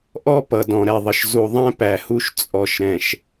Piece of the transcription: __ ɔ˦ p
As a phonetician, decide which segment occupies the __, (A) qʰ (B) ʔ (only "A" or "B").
B